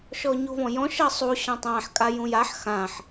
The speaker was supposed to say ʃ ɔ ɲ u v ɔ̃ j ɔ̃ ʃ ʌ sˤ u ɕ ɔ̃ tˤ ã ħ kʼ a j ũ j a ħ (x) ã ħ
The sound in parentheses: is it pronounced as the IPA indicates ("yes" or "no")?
yes